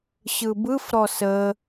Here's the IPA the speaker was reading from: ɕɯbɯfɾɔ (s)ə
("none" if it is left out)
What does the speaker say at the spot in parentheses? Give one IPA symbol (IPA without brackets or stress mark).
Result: s